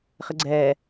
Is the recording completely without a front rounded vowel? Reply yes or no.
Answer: yes